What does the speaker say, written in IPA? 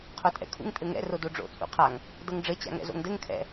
qʰ o tʼ ɛ̰ kʰ ṵ ŋ tʼ ɘ ŋ ɛ̰ r o d o ɖ͡ʐ o̰ t͡sʼ ṵ qʰ a ŋ | d ɤ ŋ ɖ͡ʐ ɘ t͡ɕ a̰ ŋ ɛ̰ z o̰ ŋ d ɘ ŋ kʰ ɛ̰

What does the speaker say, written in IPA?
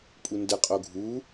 pʼ u n d ə qʼ o ɡʱ u

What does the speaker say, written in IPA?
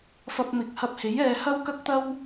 f ɐ˧ p̚ m ɪ˨˥ k̚ h ɐ˧ p̚ h e˨˥ j ɛː˨ h ɐ˥ w k ɐ˥ k̚ t̪ ɐ˥ w

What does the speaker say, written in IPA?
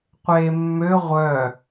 qʷ eː mː ø ʁʷ œ

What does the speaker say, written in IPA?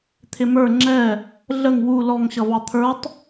t̪ʰ ɪ m ə˞ ŋ͡ǁ ɛ | ɮ ə ŋ w u l ɔ ŋ ɕ ʌ v ɑ t̪ʰ ə˞ tˤ

